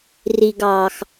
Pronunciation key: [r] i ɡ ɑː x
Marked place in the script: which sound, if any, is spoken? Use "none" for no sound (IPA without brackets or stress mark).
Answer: r